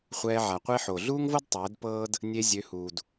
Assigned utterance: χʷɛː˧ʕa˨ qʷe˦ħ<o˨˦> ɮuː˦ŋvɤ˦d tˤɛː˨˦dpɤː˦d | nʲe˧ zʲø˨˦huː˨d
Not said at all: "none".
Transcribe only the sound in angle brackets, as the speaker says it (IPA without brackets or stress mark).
o˨